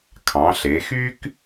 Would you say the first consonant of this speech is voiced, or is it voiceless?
voiceless